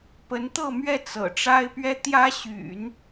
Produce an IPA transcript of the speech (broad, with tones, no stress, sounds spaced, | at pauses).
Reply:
p ə˧˥ n t̪ ɤ˥˧ m ɥ ɛ˥˩ t͡s ɤ̰˨˩ ʈ͡ʂ a˥ ɪ̯ p ɥ ɛ˥ t̪ j ä˥ ɕ y̰˨˩˦ n